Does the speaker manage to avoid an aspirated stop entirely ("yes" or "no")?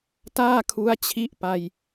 no